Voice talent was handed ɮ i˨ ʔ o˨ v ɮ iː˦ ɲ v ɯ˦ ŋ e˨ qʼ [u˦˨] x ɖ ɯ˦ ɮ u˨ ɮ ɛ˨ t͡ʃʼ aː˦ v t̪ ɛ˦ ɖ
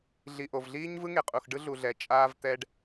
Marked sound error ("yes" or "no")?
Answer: yes